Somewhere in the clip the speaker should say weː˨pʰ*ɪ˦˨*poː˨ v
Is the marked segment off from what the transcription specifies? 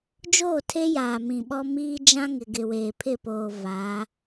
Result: no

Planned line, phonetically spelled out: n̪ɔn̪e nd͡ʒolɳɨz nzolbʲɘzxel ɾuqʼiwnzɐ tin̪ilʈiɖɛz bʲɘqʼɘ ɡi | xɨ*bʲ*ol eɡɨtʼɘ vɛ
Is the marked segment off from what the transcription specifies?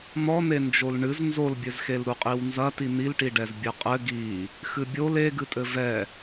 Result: no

